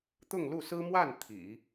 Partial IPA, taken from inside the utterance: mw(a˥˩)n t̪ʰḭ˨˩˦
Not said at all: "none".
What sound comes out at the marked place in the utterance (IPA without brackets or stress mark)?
a˥˩